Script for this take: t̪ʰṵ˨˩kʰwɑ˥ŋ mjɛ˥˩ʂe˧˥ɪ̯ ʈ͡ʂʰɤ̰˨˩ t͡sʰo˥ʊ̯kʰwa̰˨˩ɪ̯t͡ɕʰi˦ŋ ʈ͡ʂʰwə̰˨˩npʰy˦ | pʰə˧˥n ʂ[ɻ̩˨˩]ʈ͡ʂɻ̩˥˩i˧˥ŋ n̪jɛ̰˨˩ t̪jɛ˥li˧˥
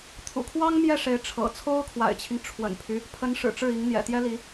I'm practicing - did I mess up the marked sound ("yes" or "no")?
no